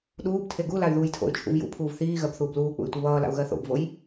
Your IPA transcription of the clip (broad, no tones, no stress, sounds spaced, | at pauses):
ɗ uː b tʰ e ɡ u l a y̯ ð uː j tʰ o̰ y̯ t͡ʃʰ ṵ v j ṵ pʰ uː v θ iː ɣ ɜ b θ uː b l uː k͡p ṵ y̯ tʷ i β ʌː l a̰ u̯ ɣ ɜ θ o̰ b v o j